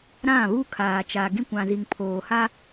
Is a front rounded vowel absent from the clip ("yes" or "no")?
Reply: yes